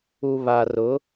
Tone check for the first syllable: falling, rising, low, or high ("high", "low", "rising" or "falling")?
low